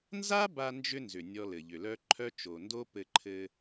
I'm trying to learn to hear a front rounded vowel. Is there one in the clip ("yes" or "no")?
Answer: yes